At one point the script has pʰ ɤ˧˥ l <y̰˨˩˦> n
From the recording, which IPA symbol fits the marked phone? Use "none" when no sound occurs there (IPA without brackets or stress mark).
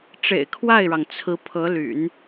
y̰˨˩˦